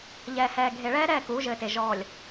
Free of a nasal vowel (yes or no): yes